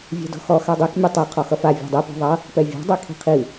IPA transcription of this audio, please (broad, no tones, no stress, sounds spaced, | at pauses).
vʲ ɛ̤ d ɔ̤ x ɔ x a dˤ i k mʲ ɛ tˤ ɛ qʰ ɔ x ʌ f a vʲ ɔ̤ dˤ i p ɔ̤ ðˤ ʌ | p ɛ vʲ ɔ̤ dˤ ɛ kʰ i̤ qʰ i